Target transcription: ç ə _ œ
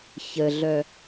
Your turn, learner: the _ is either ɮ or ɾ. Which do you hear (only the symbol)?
ɮ